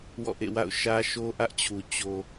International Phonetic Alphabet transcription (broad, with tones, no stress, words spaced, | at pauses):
wɔ̰˦˨ʔḛ˦˨wa̰˦˨ʊ̯ ʃä˦ʃo˦ʔä˦ʔt͡ɕʰu˨ t͡ɕo˨